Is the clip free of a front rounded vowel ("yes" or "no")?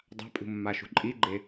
yes